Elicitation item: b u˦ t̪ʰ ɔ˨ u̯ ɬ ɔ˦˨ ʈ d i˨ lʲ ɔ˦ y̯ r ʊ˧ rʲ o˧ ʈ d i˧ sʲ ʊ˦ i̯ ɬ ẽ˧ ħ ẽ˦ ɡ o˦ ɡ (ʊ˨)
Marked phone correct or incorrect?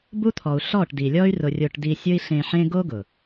correct